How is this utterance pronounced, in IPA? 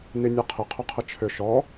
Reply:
n i nʲ ɐ qʰ ɪ qʰ ʊ qʰ ə t͡ʃʰ ʏ ʃ ɔ

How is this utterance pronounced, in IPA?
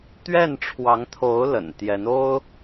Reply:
t̪ ɥ ɛ˥˩ n ʈ͡ʂʰ w ɑ˧˥ ŋ t̪ʰ o˧˥ ʊ̯ l ə̰˨˩ n t̪ j ɛ˧˥ n o˥ ʊ̯

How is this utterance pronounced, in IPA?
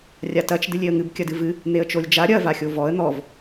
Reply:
rʲ a t ɐ t͡ʃ d ɨ lʲ e ə̯ ŋ ɨ b kʲ ɐ d ɨ v ɨ | n̪ e ə̯ t͡ʃ o lʲ d͡ʒ a ɾʲ ɐ v a xʲ o v ɔ ə̯ n̪ ɔ v

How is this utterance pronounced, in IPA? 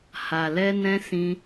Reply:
h a˨ l ɛ˧ n ɛ̃˧ s ĩ˧

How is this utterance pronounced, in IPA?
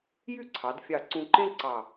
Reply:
j y˥˧ ǀʰ ɑ˩˧ d fʲ ɑ˧˩ ǀ ũ˧ ǃ ẽ˥ ǀ ɑ˧˩

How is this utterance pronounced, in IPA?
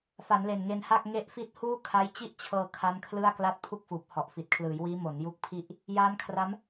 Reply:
f a˩˦ n l e˨˩ n ŋ e˧ n h a˥˩ k̚ ŋ e˦˥ ʔ f i˦˥ t̚ h uː˥˩ kʰ a˦˥ j t͡ɕ i˥˩ ʔ t͡ɕʰ ɤː˧ kʰ a˦˥ n kʰ l ɯ˥˩ a̯ k l a˥˩ t̚ pʰ u˥˩ k̚ f uː˨˩ p̚ h ɔ˨˩ ʔ f i˨˩ t̚ kʰ l ɯː˩˦ j w iː˦˥ m o˩˦ n j u˦˥ k̚ pʰ i˥˩ ʔ | j aː˦˥ n kʰ r a˦˥ m

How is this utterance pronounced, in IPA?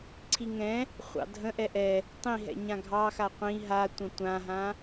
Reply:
ǀʰ i ŋ ɛ̃ | χʷ ɑ̰ dʱ ə̃ ʔ ɛ ʔ ɛ | tˤ ĩ ɦ ɛ̰ ɲ ã ɡʱ ɑ x a qʷ ĩ ɦ a tʷ ə̃ tʷ ã ɦ ã

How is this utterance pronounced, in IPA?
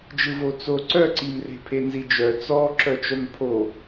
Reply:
d͡ʒ ɯ v o t͡s o ǀ œ ǀ i m r e̤ pʰ e n z i d͡ʒ œ t͡s ɔ ǁ œ t͡ʃ œ m pʰ o

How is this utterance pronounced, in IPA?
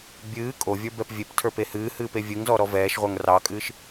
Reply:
bʲ ɨː kʼ o vʲ ə˞ b ɛ p vʲ e p tʰ ə˞ p e h ɨː h ɨː p e vʲ ɨ ŋ z ɔ ɾ ɔ v ɛː ʃ ʁʷ ə˞ ŋ r ɑ kʼ ɨː ʃ

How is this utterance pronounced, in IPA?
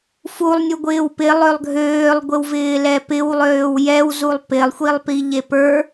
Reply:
f u lˠ nʲ u ɡʷ ɪː w p ɪ lˠ ø lˠ ɡʱ øː lˠ ɡʷ ɪ w v ɪː l ɛ p ɪ w lˠ øː w j ɛ w z u lˠ p ɪ lˠ xʷ i lˠ p i ʎ e p ə˞

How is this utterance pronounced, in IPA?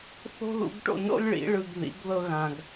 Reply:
θ o̤˦ ð ṵ˨˦ ɡ ʈ o̰˧ n o̰˦ lʲ ɭ ḭ˨˦ ɭ ɯ˧ ɡ ð ḭ˨˦ ɡ ð ɤ˦ ɣ ã˧ ɡ

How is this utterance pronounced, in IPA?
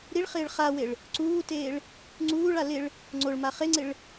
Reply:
ɾ i ɭ χ ɪː ɭ χ a w e ɭ | ǀ uː t eː ɭ | ŋ͡ǀ uː ɭ a l ɪ ɭ | ŋ͡ǀ o ɭ m a χ e ŋ͡ǀ ɪ ɭ

